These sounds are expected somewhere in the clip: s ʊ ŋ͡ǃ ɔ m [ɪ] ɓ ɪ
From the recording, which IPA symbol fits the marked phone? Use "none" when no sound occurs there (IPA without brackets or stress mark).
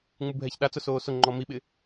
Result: i